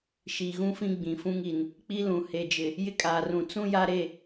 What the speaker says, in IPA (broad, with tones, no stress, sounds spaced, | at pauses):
ʃ iː˨ ɣ ũ˦ f ĩ˦ ɡ͡b ĩ˨ f ũ˦ ŋ i˨ n | k͡p i˦ l ũ˨ h e˨ d͡ʒ ɪ˨ | j ɪ˦ kʼ aː˨ r ũ˨ t͡s ũ˦ j a˦ ɾ e˦˨